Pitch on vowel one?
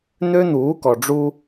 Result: high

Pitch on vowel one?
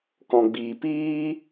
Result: low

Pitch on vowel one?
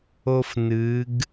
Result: high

